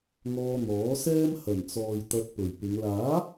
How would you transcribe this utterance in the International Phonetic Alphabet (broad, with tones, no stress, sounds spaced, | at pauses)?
ŋ ɔː˧ n̪ ɔː˨˥ s ɛː˥ m h ɐ˨˩ n t͡s ɔː˨ j t̪ ɐ˧ t̚ p ɵ˨˩ ɥ p ɪ˨˧ ŋ l aː˨˥